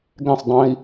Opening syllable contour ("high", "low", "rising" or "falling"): falling